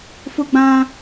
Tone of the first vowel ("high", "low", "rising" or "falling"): high